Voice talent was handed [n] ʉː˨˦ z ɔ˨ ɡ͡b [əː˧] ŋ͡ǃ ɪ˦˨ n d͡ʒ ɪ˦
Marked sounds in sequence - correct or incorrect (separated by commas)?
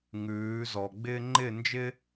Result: incorrect, incorrect